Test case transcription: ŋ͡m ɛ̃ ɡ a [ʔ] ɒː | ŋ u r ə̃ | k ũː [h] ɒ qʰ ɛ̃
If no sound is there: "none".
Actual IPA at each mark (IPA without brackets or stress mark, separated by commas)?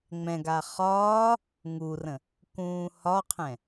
χ, h